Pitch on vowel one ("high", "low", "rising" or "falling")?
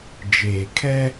low